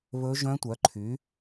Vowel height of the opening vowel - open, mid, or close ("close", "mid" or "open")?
mid